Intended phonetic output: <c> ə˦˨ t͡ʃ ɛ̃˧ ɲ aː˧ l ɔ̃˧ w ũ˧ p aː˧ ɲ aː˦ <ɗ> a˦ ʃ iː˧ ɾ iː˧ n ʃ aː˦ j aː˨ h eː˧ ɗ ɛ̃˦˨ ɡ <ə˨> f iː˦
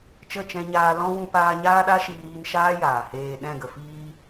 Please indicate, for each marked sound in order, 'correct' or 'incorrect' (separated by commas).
incorrect, correct, correct